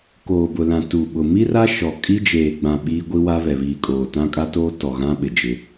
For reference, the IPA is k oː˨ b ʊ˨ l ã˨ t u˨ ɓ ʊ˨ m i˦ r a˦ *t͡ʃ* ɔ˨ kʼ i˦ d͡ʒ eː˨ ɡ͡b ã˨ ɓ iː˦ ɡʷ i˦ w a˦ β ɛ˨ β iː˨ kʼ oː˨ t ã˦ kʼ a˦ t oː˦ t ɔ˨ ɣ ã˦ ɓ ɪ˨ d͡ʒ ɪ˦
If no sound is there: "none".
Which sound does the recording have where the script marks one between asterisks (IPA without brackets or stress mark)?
ʃ